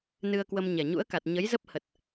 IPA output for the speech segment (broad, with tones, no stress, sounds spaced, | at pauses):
n ɨ˧ ə̯ k w ə˧ m ɲ ɛ˨˩ ɲ ṵ˧˥ ə̯ k a˨˩ t̚ ɲ ə˨˦ j z ə˦˥ p̚ h ə˨˩ t̚